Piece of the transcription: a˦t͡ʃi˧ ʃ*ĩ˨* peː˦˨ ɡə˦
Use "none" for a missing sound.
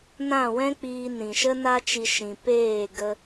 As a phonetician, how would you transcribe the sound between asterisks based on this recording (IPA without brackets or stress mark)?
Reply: ĩ˧